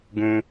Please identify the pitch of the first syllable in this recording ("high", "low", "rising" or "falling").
high